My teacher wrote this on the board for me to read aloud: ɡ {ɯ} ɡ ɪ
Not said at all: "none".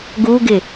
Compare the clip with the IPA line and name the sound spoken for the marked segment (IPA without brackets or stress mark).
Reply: u